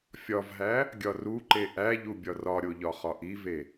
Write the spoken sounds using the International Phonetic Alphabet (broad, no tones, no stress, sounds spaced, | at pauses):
fʲ ɒ v ɦ æ | ɡʲ ɒ r u ǃ e ʔ æ ʎ u bʲ ɒ r ɒ ɾʲ o ʎ ɒ χ ɒ ʔ i v e